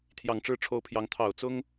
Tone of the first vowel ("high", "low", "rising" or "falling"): low